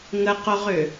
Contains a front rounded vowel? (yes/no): yes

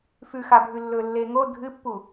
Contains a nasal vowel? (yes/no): no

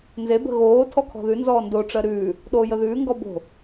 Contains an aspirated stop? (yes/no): yes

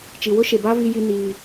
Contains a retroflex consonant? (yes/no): no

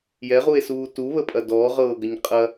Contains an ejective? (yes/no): yes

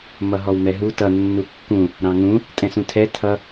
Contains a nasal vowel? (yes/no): yes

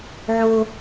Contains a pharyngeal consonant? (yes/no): yes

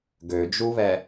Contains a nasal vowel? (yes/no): no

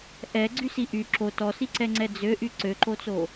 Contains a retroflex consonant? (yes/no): no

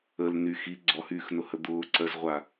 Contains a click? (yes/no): yes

